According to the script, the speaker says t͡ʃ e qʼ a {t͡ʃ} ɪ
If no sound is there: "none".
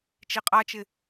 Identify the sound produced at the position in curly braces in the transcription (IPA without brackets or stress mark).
t͡ʃ